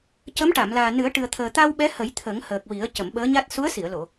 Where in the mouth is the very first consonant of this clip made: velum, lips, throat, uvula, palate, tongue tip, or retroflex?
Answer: palate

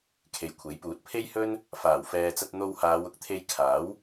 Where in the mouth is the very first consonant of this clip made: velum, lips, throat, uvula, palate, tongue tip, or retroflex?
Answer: velum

